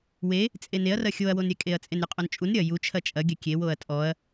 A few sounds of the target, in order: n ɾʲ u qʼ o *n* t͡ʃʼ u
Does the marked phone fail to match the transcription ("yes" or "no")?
no